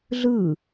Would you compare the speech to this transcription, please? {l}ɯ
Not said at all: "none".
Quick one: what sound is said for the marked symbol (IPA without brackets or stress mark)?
ɮ